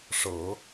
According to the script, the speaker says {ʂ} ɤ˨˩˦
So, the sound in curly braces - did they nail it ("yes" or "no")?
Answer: yes